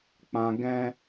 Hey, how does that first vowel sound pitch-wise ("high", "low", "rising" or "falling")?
low